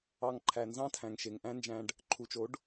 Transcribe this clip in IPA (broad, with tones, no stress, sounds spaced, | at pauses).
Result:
ɑ˧ ŋ ǃʰ æ˨ n z ɑ̃˦ tʰ æ̃˨ ŋ ʃ e˨ ŋ ʔ æ̃˦ n d͡ʒ æ̃˧ ɖ | ǃʰ u˨ t͡ʃ o˨˦ ɖ